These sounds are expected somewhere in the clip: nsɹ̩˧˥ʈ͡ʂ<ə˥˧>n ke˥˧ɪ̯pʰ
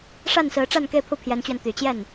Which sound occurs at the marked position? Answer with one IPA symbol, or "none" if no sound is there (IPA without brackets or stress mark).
a˥˧